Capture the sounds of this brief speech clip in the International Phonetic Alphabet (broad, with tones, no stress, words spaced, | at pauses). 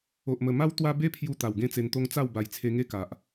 o˨ʔmə˨˩ma˦w t̪wa˦ be˦pʰju˧ t̪a˨˩wɡẽ˦t͡se˧nt̪o˦ŋ t͡sa˥˧wba˨˩jt͡sʰe˧ŋe˦ ka˨ʔ